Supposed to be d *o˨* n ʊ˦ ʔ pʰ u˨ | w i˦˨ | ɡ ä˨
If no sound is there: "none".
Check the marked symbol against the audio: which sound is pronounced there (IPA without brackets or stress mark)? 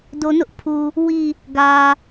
o˨